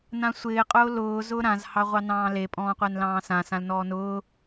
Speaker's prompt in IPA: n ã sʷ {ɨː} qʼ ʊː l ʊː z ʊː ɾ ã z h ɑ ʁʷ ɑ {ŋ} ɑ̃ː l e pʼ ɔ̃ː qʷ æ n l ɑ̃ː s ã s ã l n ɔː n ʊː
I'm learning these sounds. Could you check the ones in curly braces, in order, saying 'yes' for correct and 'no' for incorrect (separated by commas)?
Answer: no, no